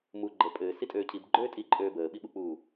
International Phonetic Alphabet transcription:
m u ɡ͡ǃ ə pʼ ɘː s i tʼ øː cʰ i b ɡ͡ǃ øː tʼ i ǃʼ øː b əː ɓ i ɓ u k͡p uː

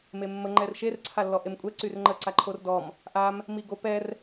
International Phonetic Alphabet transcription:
m e mː ə ŋ͡ǃ ɛ r ʃ e r ǀʰ a lː ɔ ʔ e m kʷʼ ɛ ǀ y r ŋ͡ǃ ə ǀ a ǃʰ o r d ɔ m | ʔ a m | m i ɡ o p ɛ r

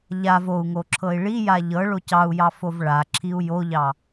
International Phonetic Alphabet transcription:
ʎ a v o u̯ ŋ o ǁʰ ɤ i̯ ɭ i j a ʎ ɤ ɭ o c ɑ u̯ j ɑ f o v ɭ a ǁʰ i u̯ j o ʎ ɑ

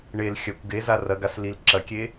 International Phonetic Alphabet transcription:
ɳ e l xʲ ɐ kʷ ɡ e z a r ɐ ɡ a s l i l ǁ ɐ kʲ e

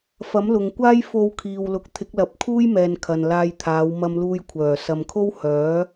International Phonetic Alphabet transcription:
f ɐ˨˥ m l ʊ˨ ŋ kʷ aː˥ j f o˧ w kʰ iː˨ w l ʊ˨˥ k̚ t̪ʰ ɪ˨˥ k̚ l ɐ˨˥ p̚ kʰ uː˥ j m ɛː˨ n kʰ ɐ˨ n l aː˧ j t̪ʰ aː˨˧ w m ɐ˧ m l uː˧ j kʷʰ œː˨˩ s ɐ˨ m kʰ o˥ w h œː˨˥

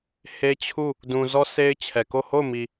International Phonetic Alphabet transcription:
h e˦ t͡ɕʰ u˦˨ | d ũ˨ z ɔ˦ sʰ e˦ ɪ̯ t͡ɕʰ ɛ˨ k o˦˨ h o˦˨ ʊ̯ m i˨

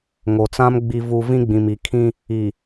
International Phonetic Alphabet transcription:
ŋ o˨ t͡s ã˦ m ɡ͡b i˨ v u˨ v ĩ˦ ɡ͡b ĩ˨ m i˨ kʰ ĩ˦ | i˨

